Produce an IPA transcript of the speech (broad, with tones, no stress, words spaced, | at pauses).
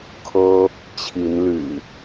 kʰɤ˦ | t͡ɕʰi˨˦nly̰˨˩